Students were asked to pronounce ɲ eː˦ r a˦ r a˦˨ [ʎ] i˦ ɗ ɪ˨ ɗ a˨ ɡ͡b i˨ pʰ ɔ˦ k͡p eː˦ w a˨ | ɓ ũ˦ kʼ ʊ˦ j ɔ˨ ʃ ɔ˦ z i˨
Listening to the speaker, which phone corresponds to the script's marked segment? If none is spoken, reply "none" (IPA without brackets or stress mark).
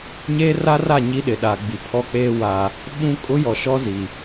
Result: ɲ